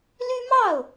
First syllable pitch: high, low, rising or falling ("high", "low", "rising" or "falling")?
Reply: high